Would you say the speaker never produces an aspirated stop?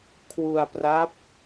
no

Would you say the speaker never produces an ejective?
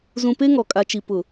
no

